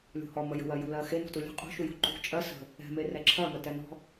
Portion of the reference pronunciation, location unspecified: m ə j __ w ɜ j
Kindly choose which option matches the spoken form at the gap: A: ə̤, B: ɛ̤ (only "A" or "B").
A